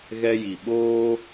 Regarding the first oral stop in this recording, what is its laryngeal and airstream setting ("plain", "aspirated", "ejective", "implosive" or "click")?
implosive